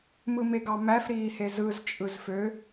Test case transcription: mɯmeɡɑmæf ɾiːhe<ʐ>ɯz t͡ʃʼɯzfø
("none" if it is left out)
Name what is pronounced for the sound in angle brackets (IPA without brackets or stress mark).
z